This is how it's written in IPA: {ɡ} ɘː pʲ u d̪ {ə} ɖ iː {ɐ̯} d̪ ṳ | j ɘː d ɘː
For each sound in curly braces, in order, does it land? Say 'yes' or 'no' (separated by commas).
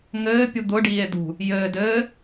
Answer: no, no, no